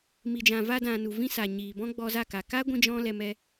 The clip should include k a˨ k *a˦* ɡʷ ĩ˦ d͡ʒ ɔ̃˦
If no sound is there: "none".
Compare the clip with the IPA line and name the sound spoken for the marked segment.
a˦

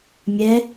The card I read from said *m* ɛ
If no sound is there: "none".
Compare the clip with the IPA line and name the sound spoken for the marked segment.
mʲ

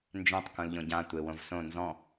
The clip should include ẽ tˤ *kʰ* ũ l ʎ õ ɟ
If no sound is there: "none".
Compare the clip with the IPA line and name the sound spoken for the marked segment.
k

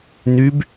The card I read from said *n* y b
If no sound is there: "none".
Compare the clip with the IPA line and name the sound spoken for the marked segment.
n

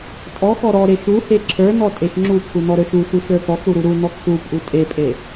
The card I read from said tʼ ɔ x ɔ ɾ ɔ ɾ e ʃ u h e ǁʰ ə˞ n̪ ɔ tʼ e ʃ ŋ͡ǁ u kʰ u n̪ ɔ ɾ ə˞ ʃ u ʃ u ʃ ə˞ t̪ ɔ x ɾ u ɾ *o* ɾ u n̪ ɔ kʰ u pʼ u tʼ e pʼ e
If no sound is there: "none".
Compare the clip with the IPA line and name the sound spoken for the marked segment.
u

